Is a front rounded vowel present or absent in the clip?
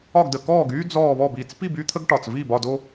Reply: present